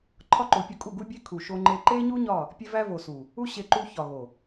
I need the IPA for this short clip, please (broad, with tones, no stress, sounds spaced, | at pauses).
ǃʰ ɒ˦ ǃ o˨˦ pʲ ɒ˧ kʼ u˦˨ ɡ u˦ bʲ e˦ kʰ u˨ ʃ o˧ ŋ͡ǃ e˧ ǃ e˦ ɲ u˦ ɲ ɒ˦˨ | pʲ e˦ v æ˦ v o˨ s u˨ | u˦ ɕ e˧ ǃ u˧ ç ɒ˨ ɣ o˨